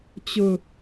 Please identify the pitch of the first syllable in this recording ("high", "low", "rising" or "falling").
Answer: low